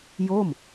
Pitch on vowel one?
falling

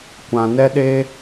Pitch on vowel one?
low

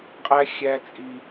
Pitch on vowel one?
high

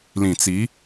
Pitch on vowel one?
low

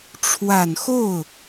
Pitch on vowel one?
low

